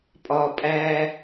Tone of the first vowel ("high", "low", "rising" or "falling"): low